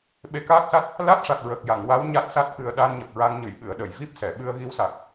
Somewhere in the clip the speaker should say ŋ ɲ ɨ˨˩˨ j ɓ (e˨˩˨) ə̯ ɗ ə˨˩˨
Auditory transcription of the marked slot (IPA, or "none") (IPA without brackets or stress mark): ɨ˨˩˨